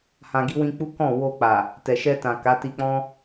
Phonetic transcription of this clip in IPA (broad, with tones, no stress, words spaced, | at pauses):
hã˨ɡi˧wĩ˧k͡pu˦ kɔ̃˦˨wo˧k͡pa˨ | tɛ˨ʃɛ˧tã˨ ka˨˦ti˧k͡pɔ̃˦